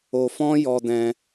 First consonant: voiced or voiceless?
voiceless